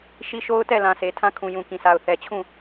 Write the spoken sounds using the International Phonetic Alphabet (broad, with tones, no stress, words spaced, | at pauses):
ʃi˦ʃo˦ʊ̯tɛ˦˨lã˨ sʰe˨tʰã˦ kʰũ˨jũ˨kĩ˨sʰa˨ʊ̯ θɛ˨t͡ɕʰũ˦˨